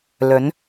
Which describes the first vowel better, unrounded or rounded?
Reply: rounded